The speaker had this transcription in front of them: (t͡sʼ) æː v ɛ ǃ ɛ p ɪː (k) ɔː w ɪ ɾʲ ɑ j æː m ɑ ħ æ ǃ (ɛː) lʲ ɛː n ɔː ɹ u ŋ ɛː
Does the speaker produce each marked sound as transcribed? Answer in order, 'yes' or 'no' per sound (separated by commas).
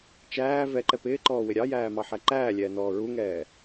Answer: no, no, no